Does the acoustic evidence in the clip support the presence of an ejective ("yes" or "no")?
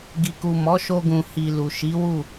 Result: no